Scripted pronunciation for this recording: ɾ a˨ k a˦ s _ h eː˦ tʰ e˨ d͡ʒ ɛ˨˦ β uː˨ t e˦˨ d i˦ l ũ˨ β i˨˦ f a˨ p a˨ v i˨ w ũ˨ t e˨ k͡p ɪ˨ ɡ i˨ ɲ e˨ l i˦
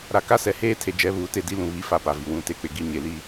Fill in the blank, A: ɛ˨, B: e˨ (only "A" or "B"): A